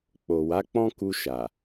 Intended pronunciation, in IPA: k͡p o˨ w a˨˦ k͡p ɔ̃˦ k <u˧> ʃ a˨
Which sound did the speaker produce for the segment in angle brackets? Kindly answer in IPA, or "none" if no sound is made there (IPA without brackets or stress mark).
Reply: u˧